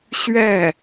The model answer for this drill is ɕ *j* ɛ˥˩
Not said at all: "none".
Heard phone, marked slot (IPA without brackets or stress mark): ɥ